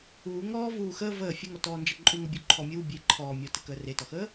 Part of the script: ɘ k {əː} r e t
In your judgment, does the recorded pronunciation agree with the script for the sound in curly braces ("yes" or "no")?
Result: yes